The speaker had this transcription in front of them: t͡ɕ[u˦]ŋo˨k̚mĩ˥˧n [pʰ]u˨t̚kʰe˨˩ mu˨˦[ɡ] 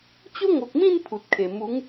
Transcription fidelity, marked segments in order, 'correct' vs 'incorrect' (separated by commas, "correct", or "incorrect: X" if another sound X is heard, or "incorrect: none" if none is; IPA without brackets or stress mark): incorrect: o˦, correct, incorrect: ŋ